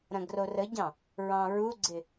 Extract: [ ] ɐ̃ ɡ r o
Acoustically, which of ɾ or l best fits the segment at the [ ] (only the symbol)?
ɾ